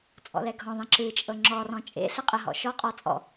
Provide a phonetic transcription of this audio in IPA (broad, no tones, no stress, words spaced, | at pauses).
t͡sʼɔ̰lɛɡʱɔ̃ðˤɛ̃ ǁɨt͡ʃʼɤ ŋ͡ǁɔrɔ̃ t͡ʃʼḛ ɬɛqʼəɦɔ̰ ʃɔqʼɔ t͡sʼɔ̰